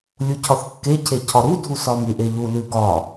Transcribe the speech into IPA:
lʲ u cʰ ɒ θ kː e cʰ e cʰ ɒ ɾ u dʱ u s ɒ m ʉ ʔ e ʎ u l ʉ ɡ ɒ

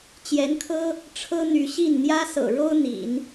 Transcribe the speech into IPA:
t͡ɕ j ɛ˧˥ n kʰ ɤ˥ | ʈ͡ʂʰ ɤ˥ n̪ y˧˥ ɕ i˥˩ n n̪ j ä˥ s ɤ̰˨˩ ɻ o˥ ʊ̯ n̪ ḭ˨˩˦ n

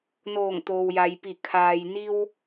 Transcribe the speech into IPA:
n oː˧˩ ŋ t̪ oː˩ w j a˩ j p i˧˩ kʰ aː˩ j n i˧ w

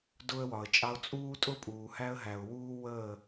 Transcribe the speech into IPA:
d ʊ˦ ə̯ w ɒ˨ ə̯ t͡ʃʼ ɑ˦ ʊ̯ t͡sʼ uː˦ tʼ ʊ˦ pʼ uː˨ h æ˦ ə̯ ɦ æ˨ ʊ̯ w uː˦ w əː˦˨

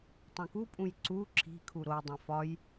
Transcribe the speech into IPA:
tˤ õ k u pʼ ũ j ǀ u ǁʰ i̤ kʰ u ɾ o dˤ æ̃ f ɒ j

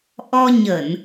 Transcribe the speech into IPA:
ʔ ɔ˧ ɲ ə˧˩˨ n

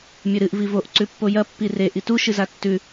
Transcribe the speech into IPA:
mʲ ɵ ɾ ɨ ʔ v i v o ʔ ǀ ʉ pː o j ɐ pː i r e ʔ i t u ʃ ɨ z a tː ʉ

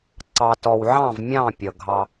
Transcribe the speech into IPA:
ǀ ɑ˨ t ɔ˨ w ʕ ɑ̃˦˨ v mʲ ɑ̃˦˨ pʲ ʌ˨ ɡʱ ɑ˦

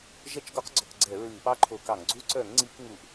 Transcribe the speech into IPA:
ʒ ɛ˦˥ t͡ʃ ɡ ɔ˦˥ q ɡ͡ǀ ɔ˧˩˧ k ɡ͡ǀ ɛ˧˩˧ ɹ ɨː˧˩˧ p ɑ˦˥ ǃʰ o˧˩˧ k ɑ˧˩˧ ŋ ɡ͡ǀ u˦˥ ǀ œ˧˩˧ ŋ ŋ͡ǀ i˧˩˧ k ŋ u˧˩˧ ʔ

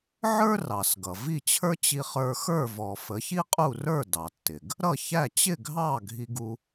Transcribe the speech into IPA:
ʕ ə˞˥ r ɑ˩ s ɡ ʌ˩ v i˥˩ t͡ɕʰ ə˞˥ t͡ɕ i˧ χ ə˞˧ x ə˞˥˩ v ɔ˩ f ə˩˥ ç i˥ qʼ u˥˩ r ə˞˥˩ d ɑ˩ tː ɪ˩ ɡ | ɾ ʌ˥˩ ç æ˥˩ t͡ɕ ɪ˥˩ ɡʱ ɑ˥˩ ɡʱ i˧ ɡ u˧

